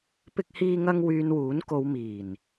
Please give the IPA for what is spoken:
p ɪ˥ k̚ h iː˥ ŋ ɐ˥ ŋ w yː˧ n w uː˨˥ n k o˨˧ w m iː˨˩ n

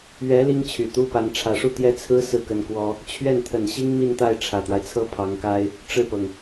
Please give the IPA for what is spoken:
ɥ ɛ˧˥ l i˥ ŋ t͡ɕʰ y˨˩ t̪ u˥ p a˧˥ n ʈ͡ʂʰ ä˨˩ ʂ u˥˩ t̪ j ɛ˥ t͡sʰ ɹ̩˥ s ɹ̩˥˩ k ə˧˥ n k w ɔ˥ | t͡ɕʰ ɥ ɛ˥˩ n t̪ʰ ə˨˩ n ɕ i˥ ŋ m i˥˧ n t̪ a˥˩ ɪ̯ ʈ͡ʂʰ ä˨˩ t̪ w a˦ ɪ̯ t͡sʰ ɤ˥ pʰ ɑ˧˥ ŋ k a˥ ɪ̯ | ʈ͡ʂ ɻ̩˥˩ p ɤ˩ ŋ

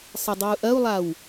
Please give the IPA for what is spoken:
sˤ ɨ dˤ o u̯ ʔ ɐ u̯ lˠ a w

